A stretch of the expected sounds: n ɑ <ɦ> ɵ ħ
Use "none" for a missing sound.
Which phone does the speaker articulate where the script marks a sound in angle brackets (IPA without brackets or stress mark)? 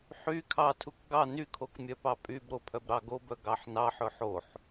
ħ